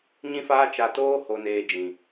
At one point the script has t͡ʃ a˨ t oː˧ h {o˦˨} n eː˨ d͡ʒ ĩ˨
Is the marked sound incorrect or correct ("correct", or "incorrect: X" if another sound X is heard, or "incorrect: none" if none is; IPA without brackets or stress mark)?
incorrect: o˨